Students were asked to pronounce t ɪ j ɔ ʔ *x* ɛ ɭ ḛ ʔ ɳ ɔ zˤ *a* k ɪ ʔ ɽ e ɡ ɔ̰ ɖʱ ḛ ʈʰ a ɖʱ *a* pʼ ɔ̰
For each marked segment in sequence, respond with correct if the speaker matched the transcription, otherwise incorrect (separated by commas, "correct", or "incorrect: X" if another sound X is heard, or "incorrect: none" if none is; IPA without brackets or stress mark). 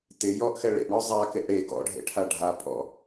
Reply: correct, correct, correct